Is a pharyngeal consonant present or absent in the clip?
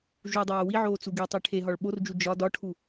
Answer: present